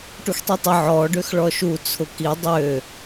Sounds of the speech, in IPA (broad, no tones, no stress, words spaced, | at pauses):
ʈuxtˤitˤə ʕɔ ɖøxɭɔʃu t͡sʰʊki dˤø